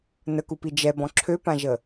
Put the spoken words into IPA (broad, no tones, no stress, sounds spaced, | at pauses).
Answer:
n ə k u p i d͡ʒ ɛ b ɔ̃ ǁʰ ø p ã ʒ ə